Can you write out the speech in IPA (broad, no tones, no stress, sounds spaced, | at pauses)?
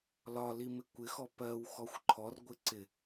l ɒ l i m ɪ kʷ ɪ x ɔ p ɜ w x ɔ xʷ ǃʰ ɔ r ɡʷ ɪ ǀ ɪ